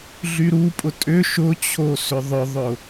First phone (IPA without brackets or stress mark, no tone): ɮ